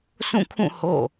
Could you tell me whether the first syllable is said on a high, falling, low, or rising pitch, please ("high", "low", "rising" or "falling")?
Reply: falling